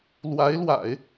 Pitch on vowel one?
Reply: rising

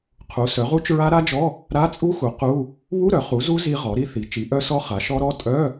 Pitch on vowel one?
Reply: rising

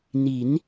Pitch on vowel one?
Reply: rising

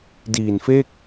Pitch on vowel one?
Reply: low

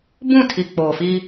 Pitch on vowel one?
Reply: falling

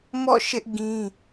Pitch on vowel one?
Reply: falling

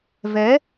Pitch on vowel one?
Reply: rising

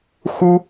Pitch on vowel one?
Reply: high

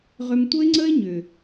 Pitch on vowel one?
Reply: low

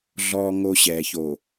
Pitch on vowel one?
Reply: low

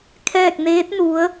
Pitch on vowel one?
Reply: falling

